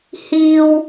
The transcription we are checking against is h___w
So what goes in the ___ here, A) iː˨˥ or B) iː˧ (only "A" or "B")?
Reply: B